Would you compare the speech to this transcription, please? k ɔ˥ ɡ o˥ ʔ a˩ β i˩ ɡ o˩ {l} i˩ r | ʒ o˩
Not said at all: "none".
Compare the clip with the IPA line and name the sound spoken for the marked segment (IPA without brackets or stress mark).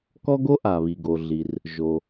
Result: ɮ